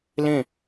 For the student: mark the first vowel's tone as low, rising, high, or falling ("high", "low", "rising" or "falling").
falling